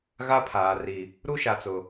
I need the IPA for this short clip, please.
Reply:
ɣ a˦ pʰ aː˨ r i˨ | ɾ u˦ ʃ a˨ t͡s ʊ˨

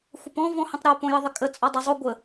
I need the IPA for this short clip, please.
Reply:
xʷ ə p ɔ̃ v ɔ̃ h ə̃ tˤ ɾ o p õ j ə ðˤ ɪ kʼ ə t͡sʼ ɔ dˤ o zˤ o ɡʷ ə

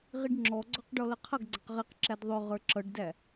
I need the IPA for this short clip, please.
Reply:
ʁ i ɖ ŋ͡ǁ ɔ ɡ͡ǀ ɔ q ɖ ɔ l ʌ qʰ ʌ ɡ ɡ͡ǀ ʌ q ʁ i q ǁ æ d ðˤ ʊ ʁ ə˞ ǁ ʌ ɖ d æ

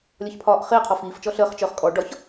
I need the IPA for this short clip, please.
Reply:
lʲ ɒ ç pʰ ɒː ʔ χ ɪː qʰ ɔ f iː f t͡ʃ ɔ ɬ əː χ t͡ʃ œ χ kʼ ɔ ɖ ɒ ç

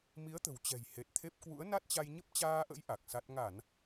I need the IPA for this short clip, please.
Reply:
m i˨˦ ə̯ t̪ ə̤˨˩ w t͡ɕ ɛ̤˨˩ j h e˨˩ t̚ t̪ʰ e˦˥ p̚ k w ṵ˧˥ ə̯ n a˦˥ t̚ t͡ɕ a˧ j ɲ ə˦˥ p̚ t͡ɕ aː˧ ʔ ə̰˧˥ j ʔ a˨˩ k̚ s a˦˥ t̚ ŋ a˧˩˨ n

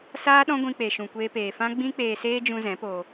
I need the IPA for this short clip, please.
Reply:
s aː˦ ɗ ɔ̃˦ ɡʷ ĩ˧ k͡p e˨ ʃ ũ˨ kʷ eː˧ p eː˨ f ã˦ ɡ͡b ĩ˦ k͡p eː˧ s eː˦ d͡ʒ ũ˧ z ɛ̃˨˦ p o˧

